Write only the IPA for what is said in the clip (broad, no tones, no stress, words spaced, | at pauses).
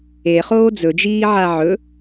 eχoː d͡zɵd͡ʒiːʕa ʕɵ